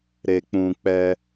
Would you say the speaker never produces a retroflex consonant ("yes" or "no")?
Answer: yes